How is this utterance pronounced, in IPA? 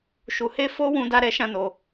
ʃ u˧ h e˦ f o˦ w ũ˦ d a˦ ɾ ɛ˦ ʃ ã˦ n o˧

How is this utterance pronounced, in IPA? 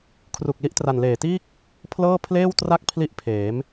kʰ r u˨˩ k̚ l i˦˥ ʔ t r a˨˩ n l eː˨˩ t iː˥˩ k̚ | pʰ l ɤː˥˩ pʰ l eː˥˩ w t r a˥˩ k̚ pʰ l i˦˥ ʔ pʰ eː˩˦ m

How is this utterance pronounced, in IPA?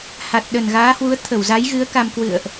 h a˨˩ t̚ ɗ ə˨˩ n ɣ aː˨˦ h w u˨˦ ə̯ t̪ʰ ə˧˩ w z a˨˦ j ɣ ɨ˨˦ ə̯ k a˧ m k w ɨ̰˧˨ ə̯ ʔ

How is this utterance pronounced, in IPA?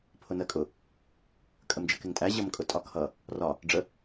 pʰ ʊ n ɜ kʼ ʊ | kʼ ə m d͡ʒ ə k ɪ ŋ tʼ æ ʑ ʌ m kʼ ʊ tʼ ɒ kʰ ʌ | r ɒ | ɖ͡ʐ ə

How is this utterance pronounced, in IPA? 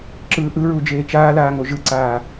ǁ ɯː ʔ ɯ ɹ u d͡ʒ eː t͡ʃ aː l aː ŋ o ʒ ɯ ǀ aː

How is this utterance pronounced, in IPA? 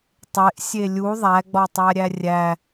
tˤ e ʔ sʲ e lʲ u ðˤ æ ɡ͡b ɒ tˤ æ ɾʲ æ rʲ æ

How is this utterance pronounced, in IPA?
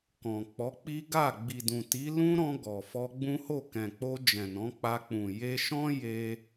k ɔ̃˨ k͡p ɔ˨˦ k͡p i˦ ɡ a˦˨ ɡ͡b i˨ d ũ˨ t i˨˦ l ũ˦ ɾ ɔ̃˧ ɡ ɔ˨ f ɔ˧ ɡ͡b ũ˦ h o˦˨ k ɛ̃˨ k͡p o˧ d͡ʒ ɛ̃˨ n ɔ̃˨˦ k͡p a˧ k͡p ũ˨ j e˧ ʃ ɔ̃˦ j e˦

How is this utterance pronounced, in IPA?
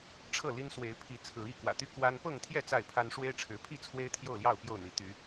ʈ͡ʂʰ ɤ˥˨ l i˦ n s w e˨˦ ɪ̯ pʰ i˨˦ t͡sʰ ɹ̩˨˦ i˥˨ k w ä̰˨˩ t̪ y˦ k w a˦ n p ɤ˥˨ ŋ t̪ʰ j ɛ˥˨ t͡s a˥˨ ɪ̯ pʰ a˦ n ʂ w e˦ ɪ̯ ʈ͡ʂʰ ɻ̩˨˦ pʰ i˥˨ t͡sʰ w e˦ ɪ̯ t̪ʰ j o˥˨ ʊ̯ l j ɑ˥˨ ʊ̯ p j o˥˨ ʊ̯ n̪ i˨˦ t̪ y˨˦

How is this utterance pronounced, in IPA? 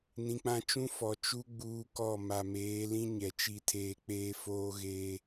n ĩ˨ k͡p ã˦ t͡ʃ ũ˦ f ɔ˨ t͡ʃ u˦ ɡ͡b uː˦ k ɔ˦˨ m a˨ m eː˨˦ l ĩ˦ ɲ ɛ˨ t͡ʃ i˦ tʰ eː˦ k͡p eː˦ f oː˦ ɣ eː˦

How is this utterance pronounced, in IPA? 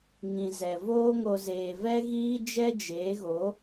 ŋ ĩ˨ z ɛ˨ v oː˦ ŋ o˧ z eː˨ v ɛ˦ ɣ iː˦ d͡ʒ ɛ˦ d͡ʒ eː˨˦ ɣ o˨˦

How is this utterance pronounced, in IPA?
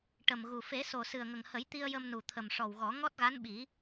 ʈ ə˨˩ m ɣ u˨˩ f e˨˩˦ s o˨˩ s ɨ˨˩ ə̯ ŋ ə˨˩ ŋ h ə˨˩˦ j t̪ i˧ ə̯ j ə˧ m n u˨˩ t̪ʰ ə˨˩ m ʂ ɔ˨˩ w ɣ ɔ˨˩˦ ŋ ɔ˦˥ t̚ ɣ a˧˥ n ɓ i˨˩˦

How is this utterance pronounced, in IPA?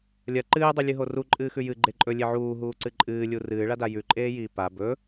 lʲ ɐ ǃ ɨː dˤ ʉ lʲ ɨ ɦ o r u ǃʼ ɨː x ʉ j ɨ ɡ͡ǃ e ǃʼ ɵ lʲ e ʕ uː ɦ uː ǀ ɨ ǃʼ ɨː lʲ u r ɨː ɭ a d a j ʉ ǃʼ eː j iː p a b ɵ

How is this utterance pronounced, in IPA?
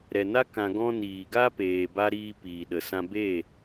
ɾ ɛ˨ n a˦ k ã˧ ɡ ɔ̃˦ n iː˨ ɡ a˦ p eː˨ b a˧ ɾ iː˧ p iː˨ ɗ ə˨ s ã˦ b e˦˨

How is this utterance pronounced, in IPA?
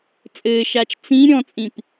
t͡sʼ ɘː ʃ aː t͡ʃ t͡s ĩ ɾʲ ɔ̃ t͡sʼ ĩ p

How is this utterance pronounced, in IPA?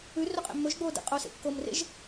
ʉ r ɵ qʼ ḛ mː ɵ ʒ ɡ͡b oː d ḛ qʼ o s ḛ kː o m r ḛ ʒ

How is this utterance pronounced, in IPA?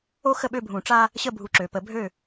o˦ x ə˦˨ ɓ ø˦˨ bʱ ũ˨˩˦ ʈ͡ʂ a˦ | ɕ ə˦˨ bʱ u˩˥ ǁ ø˩ p ə˨˩˦ bʱ ø˦˨

